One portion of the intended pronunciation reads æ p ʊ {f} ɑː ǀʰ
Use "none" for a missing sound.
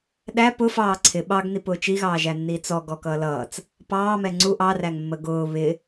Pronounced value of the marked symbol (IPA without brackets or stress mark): f